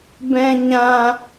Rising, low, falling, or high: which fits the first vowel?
low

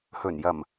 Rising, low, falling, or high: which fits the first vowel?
low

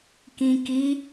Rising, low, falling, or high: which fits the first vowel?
low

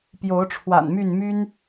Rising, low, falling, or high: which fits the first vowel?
rising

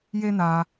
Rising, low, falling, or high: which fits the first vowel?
high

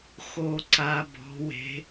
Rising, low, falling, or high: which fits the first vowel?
low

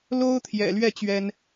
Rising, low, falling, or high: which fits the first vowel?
high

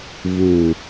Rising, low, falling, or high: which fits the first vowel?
falling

